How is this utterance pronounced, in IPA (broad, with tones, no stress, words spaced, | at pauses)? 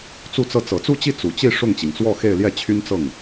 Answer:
t͡su˥˧t͡sɤ˥˩ t͡sɤ˨˩t͡su˥˧t͡ɕi˥˩ t͡su˨˩t͡ɕi˥˧ ʂʊ˥˩ŋt͡ɕi˩ŋ t͡swɔ˥˧ xe˥˧ɪ̯ljɛ˥˩ t͡ɕʰy˥n t͡sɤ˥˩ŋ